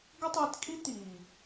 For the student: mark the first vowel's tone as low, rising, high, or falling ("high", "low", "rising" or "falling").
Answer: high